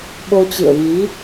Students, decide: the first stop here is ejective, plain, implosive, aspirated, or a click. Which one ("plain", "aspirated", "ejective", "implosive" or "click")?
implosive